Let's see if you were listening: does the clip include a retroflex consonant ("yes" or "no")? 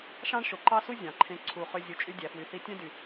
yes